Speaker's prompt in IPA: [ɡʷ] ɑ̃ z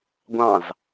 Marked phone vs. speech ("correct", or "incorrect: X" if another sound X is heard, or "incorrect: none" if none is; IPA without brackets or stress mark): correct